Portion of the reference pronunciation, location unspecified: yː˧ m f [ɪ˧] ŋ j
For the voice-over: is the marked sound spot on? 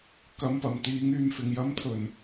no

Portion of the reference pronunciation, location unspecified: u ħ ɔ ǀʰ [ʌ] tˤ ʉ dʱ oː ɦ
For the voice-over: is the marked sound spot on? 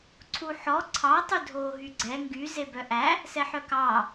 no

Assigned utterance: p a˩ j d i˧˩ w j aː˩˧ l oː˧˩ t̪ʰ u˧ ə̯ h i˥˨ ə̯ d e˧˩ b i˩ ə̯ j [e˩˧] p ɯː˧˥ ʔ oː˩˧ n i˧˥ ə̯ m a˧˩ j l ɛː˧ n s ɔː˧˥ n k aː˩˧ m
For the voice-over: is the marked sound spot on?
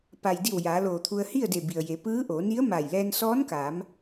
yes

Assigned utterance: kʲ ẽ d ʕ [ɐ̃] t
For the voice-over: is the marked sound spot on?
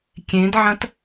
yes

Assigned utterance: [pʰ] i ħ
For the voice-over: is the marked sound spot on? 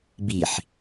no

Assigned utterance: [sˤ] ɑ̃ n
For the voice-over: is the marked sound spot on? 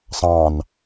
yes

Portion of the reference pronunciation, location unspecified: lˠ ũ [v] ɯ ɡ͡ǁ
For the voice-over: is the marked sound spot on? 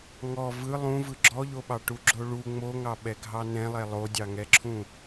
yes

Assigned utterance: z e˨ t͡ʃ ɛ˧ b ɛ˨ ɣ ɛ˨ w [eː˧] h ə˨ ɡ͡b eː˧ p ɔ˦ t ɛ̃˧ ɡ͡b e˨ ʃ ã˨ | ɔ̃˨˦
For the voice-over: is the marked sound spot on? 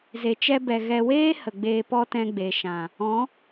yes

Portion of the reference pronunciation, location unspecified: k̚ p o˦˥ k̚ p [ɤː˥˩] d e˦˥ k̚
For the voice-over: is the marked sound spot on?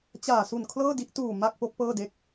yes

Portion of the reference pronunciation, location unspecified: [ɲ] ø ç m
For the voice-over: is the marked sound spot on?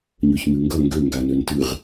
yes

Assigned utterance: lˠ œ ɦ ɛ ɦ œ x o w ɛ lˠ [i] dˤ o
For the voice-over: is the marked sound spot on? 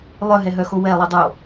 yes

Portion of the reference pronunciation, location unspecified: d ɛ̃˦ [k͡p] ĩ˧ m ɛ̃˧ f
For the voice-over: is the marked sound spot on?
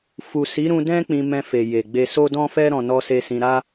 yes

